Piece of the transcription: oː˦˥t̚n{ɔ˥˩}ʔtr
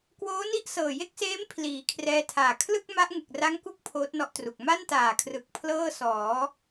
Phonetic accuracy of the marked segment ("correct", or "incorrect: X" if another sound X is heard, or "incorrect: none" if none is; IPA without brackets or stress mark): correct